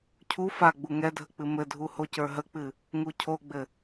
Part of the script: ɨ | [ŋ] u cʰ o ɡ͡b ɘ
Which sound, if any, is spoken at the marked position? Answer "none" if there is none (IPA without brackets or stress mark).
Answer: ŋ